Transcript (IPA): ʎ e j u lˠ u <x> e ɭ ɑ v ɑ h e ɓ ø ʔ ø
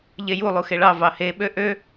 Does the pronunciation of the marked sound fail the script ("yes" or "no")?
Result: no